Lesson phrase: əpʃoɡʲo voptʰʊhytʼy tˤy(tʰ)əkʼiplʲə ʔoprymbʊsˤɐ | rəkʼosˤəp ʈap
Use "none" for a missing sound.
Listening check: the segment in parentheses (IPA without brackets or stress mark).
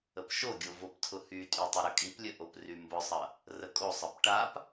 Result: ɾ